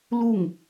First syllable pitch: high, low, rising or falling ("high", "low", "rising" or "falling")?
falling